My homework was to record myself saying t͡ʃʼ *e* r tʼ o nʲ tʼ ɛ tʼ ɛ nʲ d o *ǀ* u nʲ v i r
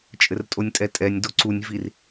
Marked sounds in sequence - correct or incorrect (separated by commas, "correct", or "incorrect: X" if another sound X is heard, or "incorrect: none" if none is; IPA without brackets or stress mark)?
incorrect: ɘ, correct